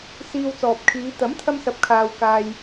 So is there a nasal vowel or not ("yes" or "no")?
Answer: no